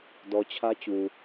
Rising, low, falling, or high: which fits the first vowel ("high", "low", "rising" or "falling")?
low